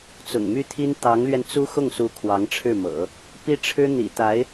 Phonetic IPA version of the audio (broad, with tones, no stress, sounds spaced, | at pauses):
t͡s ʊ̰˨˩ ŋ m y˥ t̪ʰ i˥ n t̪ ɑ˧˥ ŋ l ɥ ɛ˧ n t͡s u˥ x ʊ˥˩ ŋ s u˧˥ kʰ w ɑ˧˥ ŋ ʈ͡ʂʰ ɻ̩˥˩ m ɤ̰˨˩˦ | p i˥ ʈ͡ʂʰ ɻ̩˥ n̪ ḭ˨˩ t̪ a˧˥ ɪ̯